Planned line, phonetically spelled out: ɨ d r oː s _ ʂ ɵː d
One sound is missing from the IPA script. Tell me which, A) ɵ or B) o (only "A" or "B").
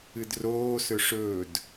A